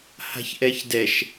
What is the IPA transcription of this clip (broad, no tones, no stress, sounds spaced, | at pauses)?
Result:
h a̤ ç ʔ ɛ ç d ɛ ʃ